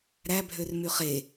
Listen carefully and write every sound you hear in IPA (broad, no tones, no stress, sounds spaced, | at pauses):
ɾ æ bʱ ø r m y χ e